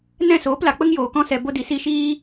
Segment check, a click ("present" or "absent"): absent